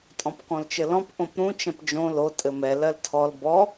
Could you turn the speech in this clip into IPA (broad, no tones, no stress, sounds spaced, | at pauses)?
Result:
tʼ ɔ̃ p k ɔ̃ l t͡ʃ ɘ l ɔ̃ p ʔ õ p ɾ ũ t͡ʃ ɛ̃ p d͡ʒ õ l o tʼ ɘ m ɛ l ɜ l tʰ ɔ l b ɔ